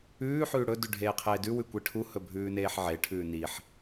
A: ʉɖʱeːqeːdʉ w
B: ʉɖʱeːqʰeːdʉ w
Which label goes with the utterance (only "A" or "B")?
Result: B